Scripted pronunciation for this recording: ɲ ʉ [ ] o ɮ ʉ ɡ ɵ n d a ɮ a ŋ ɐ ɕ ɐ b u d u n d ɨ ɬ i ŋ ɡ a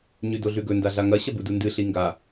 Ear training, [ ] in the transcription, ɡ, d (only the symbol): d